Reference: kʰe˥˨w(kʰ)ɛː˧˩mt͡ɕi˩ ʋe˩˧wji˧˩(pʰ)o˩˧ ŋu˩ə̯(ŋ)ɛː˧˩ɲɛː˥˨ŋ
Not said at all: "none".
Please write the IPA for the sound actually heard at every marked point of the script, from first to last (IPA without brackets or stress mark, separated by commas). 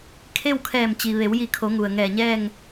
kʰ, kʰ, ŋ